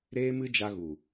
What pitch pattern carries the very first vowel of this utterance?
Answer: high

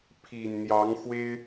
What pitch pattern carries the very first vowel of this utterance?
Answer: low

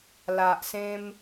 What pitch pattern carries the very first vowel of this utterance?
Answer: low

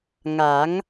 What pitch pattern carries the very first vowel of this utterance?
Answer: rising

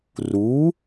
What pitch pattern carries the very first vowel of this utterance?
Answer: rising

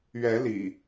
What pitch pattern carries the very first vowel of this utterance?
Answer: rising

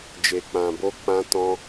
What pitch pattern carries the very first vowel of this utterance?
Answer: low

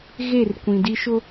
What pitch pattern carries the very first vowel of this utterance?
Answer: falling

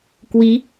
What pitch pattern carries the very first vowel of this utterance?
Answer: rising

